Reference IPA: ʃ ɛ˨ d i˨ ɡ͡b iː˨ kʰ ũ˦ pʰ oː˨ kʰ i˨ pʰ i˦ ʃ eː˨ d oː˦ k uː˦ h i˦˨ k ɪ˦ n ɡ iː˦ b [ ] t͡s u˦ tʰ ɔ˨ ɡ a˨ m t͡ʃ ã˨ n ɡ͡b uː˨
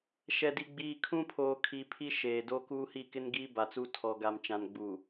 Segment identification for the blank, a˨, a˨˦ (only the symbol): a˨